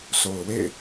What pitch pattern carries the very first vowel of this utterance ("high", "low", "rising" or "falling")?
low